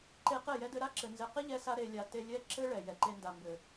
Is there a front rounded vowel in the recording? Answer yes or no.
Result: no